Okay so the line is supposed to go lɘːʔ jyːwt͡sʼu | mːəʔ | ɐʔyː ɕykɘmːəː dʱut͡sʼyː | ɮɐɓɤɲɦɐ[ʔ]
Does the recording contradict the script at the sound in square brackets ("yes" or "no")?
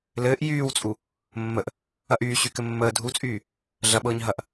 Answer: no